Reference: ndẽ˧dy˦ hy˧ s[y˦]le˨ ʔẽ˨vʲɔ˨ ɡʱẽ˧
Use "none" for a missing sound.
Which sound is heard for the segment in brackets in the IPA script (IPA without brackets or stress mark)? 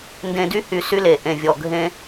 y˦